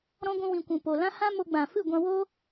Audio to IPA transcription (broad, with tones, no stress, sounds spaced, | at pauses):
ɾ ɔ̃˦ ɡʷ ũ˧ w ĩ˨ kʷ ũ˨ p o˨ l ã˦ h ã˦ m o˧ ɡ͡b ã˨ f ɨ˦˨ ɡʷ ã˧ w o˦